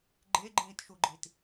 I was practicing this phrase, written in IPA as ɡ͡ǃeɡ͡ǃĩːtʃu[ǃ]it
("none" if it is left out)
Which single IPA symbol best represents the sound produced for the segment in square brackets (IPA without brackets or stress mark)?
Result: ɡ͡ǃ